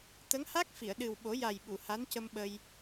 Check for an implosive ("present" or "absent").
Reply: present